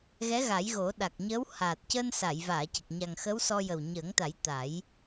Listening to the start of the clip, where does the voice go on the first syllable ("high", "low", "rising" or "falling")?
rising